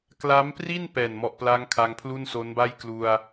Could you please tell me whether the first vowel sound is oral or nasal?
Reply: oral